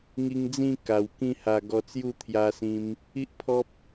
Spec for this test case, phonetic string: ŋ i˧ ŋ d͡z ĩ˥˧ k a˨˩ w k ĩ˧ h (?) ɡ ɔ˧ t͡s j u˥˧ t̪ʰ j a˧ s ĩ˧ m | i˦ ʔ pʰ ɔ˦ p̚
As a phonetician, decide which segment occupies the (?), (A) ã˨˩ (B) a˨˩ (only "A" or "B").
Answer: B